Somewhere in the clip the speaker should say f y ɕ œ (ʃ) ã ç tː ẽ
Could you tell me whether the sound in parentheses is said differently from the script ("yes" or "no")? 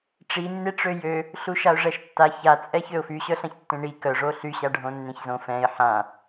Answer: yes